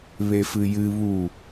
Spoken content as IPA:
β e f ɨ j ɨ β u

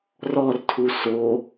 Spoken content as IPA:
r ɔ r tʰ u s o

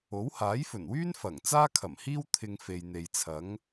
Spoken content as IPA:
o˨˥ w h aː˨˥ j f ɵ˨˩ n w yː˥ n f ɐ˨˩ ŋ t͡s aː˥ kʰ ɐ˨˩ m h iː˥ w t̪ʰ ɪ˧ ŋ f e˨ j n̪ e˨ j t͡sʰ ɐ˨˥ ŋ

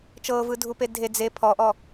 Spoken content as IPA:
t͡ʃ ɤː v ɯ dʱ u p e dʱ e d͡z e pʰ ɔ ʔ ɔ

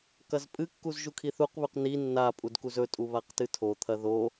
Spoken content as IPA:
k ɐ z pʼ ɨ kː u z ʒ u kʰ i θ u q β ʉ q n i nː a pʼ u d k u z ɵ tʼ u β a q t ɨ tʰ o t̪ʰ ɐ ð o

